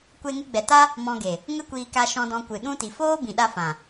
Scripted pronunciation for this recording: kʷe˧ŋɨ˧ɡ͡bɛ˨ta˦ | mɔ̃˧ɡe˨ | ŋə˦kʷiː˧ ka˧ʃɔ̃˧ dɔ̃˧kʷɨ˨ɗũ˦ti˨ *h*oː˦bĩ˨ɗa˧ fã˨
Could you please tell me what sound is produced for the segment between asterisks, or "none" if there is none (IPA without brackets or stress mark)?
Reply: f